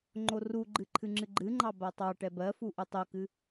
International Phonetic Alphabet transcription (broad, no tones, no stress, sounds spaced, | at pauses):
ŋ͡ǃ o r u ɡ͡ǃ ɨ ǃʰ ɨ ŋ͡ǁ ɨ ɡ͡ǃ ɨ ŋ͡ǃ ɑ b a tˤ ɑ ʈ ɛ b ɜ f u ʔ u tˤ o k ɨ